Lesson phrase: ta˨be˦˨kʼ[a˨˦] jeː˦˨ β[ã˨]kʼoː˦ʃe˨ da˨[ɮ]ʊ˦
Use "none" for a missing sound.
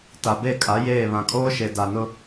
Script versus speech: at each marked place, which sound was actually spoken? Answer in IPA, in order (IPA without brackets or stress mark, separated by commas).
a˨˦, ã˨, n